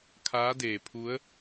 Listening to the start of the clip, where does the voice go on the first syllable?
rising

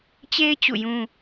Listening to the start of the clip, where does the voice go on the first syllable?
high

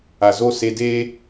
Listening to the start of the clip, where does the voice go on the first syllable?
low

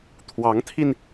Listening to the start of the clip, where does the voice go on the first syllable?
rising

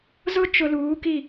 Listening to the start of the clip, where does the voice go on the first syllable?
high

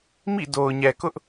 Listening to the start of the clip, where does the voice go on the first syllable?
falling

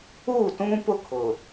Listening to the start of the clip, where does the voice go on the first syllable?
falling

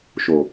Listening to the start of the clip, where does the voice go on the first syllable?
low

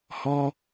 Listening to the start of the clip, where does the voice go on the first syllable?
high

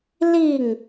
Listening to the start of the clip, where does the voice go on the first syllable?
falling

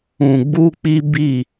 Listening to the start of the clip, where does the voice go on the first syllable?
low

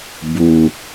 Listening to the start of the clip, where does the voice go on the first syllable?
low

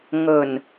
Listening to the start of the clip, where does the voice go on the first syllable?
low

